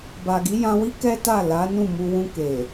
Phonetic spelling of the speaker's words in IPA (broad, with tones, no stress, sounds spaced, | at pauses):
b a˨ ɡ i˨˦ j ã˧ w i˦ k ɛ˦ t a˦˨ l a˨˦ n ũ˦˨ m u˧ w ũ˧ k e˨